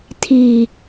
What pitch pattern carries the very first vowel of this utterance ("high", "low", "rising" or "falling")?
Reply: low